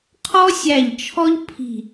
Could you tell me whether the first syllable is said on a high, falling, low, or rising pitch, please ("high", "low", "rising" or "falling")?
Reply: high